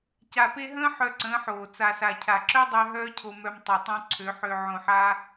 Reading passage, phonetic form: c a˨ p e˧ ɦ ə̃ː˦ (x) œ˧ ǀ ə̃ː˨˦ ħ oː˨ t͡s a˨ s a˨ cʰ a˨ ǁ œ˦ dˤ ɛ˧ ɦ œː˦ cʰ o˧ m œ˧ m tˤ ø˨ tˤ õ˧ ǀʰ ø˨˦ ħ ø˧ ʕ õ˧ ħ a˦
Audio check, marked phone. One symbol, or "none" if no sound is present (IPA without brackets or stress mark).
ħ